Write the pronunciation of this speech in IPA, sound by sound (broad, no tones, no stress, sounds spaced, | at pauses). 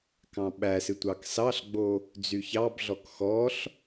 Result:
k ɑ̃ ɓ æ s ɨ tʷ ɑ k s ɑ ɬ ɡ͡b o | d͡z y ç ɑ b ɮ ɔ k x ɔ ɬ